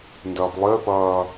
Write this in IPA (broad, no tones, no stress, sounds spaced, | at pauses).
n d ɐː p lˠ ɪː p ɐː